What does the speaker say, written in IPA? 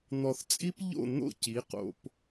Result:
n̪ɔ˨θt͡sʼi˦p ʎo̰˦˨n̪o̰˦˨ci˨˦ qo̰˧p

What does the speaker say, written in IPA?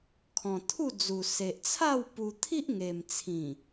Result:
kʰɔ̃˨˩t̪ʰu˥˧d͡zu˨˩ se˨ʔt͡sʰa˥˧w pu˧ t̪ʰi˦ʔŋe˨˩mt͡sʰĩ˨˩

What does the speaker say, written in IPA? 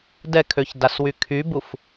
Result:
dɛkʰøçdaswy kʰybuf

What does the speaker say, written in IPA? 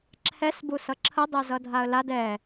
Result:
ǁʰɛs busʌǁʰə dˤɛzʌdʱaə̯lad ɛ

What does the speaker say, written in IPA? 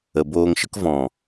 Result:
ə˨boː˧ŋʃə˦k vɔ̃˨

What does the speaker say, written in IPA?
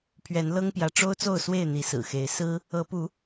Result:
pʰɥɛ˨˦n lɤ˦ŋpjä˨˦ ʈ͡ʂo˦ʊ̯t͡so˥˨ʊ̯swe˥˨ɪ̯ n̪i˨˦sɹ̩˨˩xe˨˦ɪ̯ sɹ̩˦ | ɤ˨˦pu˨˦

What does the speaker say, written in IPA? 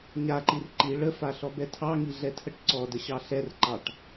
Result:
ɲaǃir ǃi ɭəfaɬɔbɛ tʰɑŋiɮɛtʰəʈ ǀɔdəɕɑ ɬɛrǃɑʈ

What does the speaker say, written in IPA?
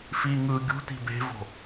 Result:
fi ŋɯ ɡʲṳti̤ be̤vo̤

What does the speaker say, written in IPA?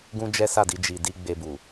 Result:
ɡũ˦d͡ʒɛ˦sa˦˨di˧ d͡ʒi˨di˧ ɡ͡be˧bu˨

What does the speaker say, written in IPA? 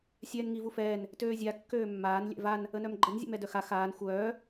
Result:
sʲɛːnŋivufɛːn | tøːzʲa kːøːmːaːn lʲɛ̰van | ənœmɡ͡ǃən zʲɛ̰mɛdœxa xaːn xʷœː

